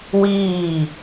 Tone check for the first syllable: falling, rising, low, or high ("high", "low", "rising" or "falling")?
falling